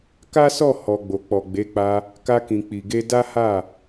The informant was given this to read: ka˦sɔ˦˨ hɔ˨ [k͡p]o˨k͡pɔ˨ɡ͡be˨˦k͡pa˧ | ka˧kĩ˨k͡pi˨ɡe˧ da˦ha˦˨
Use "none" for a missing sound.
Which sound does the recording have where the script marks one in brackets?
ɡ͡b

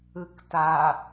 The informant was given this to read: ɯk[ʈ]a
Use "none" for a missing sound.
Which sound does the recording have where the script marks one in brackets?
t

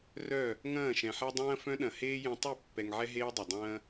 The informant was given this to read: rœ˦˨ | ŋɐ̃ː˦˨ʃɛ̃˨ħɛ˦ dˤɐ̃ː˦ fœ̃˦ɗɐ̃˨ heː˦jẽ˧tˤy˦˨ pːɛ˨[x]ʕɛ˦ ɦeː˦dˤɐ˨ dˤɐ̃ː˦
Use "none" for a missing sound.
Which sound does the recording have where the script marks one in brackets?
ŋ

